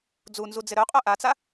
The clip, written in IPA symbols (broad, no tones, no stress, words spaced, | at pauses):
d͡zunzud͡zɪ ɾœqʼœ ʔat͡sa